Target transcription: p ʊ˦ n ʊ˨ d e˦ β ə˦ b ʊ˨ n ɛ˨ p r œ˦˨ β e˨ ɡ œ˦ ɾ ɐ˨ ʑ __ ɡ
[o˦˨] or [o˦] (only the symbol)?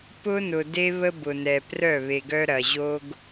o˦